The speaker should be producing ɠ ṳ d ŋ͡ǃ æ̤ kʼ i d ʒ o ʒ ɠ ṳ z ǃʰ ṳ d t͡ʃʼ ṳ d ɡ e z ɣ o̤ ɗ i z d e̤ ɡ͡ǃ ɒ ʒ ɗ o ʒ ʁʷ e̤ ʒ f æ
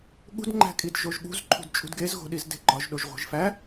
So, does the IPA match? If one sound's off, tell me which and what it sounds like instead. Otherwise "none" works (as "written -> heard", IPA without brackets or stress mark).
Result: none